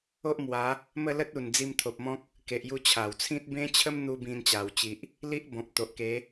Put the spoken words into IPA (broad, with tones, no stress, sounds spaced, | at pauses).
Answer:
o˦ ʔ m w a˨˦ | m ə˥˧ l ə˦ t̚ u˨˩ n d͡z i˧ m t̪ʰ o˨ p̚ m ɔ̃˦ k̚ | k e˨ ʔ j u˧ t͡ɕʰ a˨˩ w t͡sʰ ĩ˦ t̚ b ẽ˦ t͡ɕʰ ə˦ m n̪ u˧ b ĩ˧ n t͡ɕ a˨˩ w t͡ɕ i˨ ʔ | l i˦ ʔ b ɔ̃˨ p̚ t̪ o˨ ʔ k e˨˦